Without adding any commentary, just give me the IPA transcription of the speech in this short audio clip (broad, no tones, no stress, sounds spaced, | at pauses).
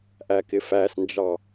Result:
ʔ æ k ɪ f æ s n d͡ʒ ɑ